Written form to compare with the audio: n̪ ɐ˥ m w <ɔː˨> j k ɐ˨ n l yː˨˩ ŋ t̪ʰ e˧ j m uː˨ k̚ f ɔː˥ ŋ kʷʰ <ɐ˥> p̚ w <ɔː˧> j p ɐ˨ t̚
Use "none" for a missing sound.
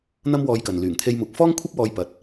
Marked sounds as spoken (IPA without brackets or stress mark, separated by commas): ɔː˧, ɐ˥, ɔː˧